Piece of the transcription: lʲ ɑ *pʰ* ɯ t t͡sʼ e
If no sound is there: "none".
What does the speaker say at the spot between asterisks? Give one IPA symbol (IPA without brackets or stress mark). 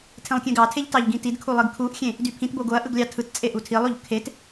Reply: tʰ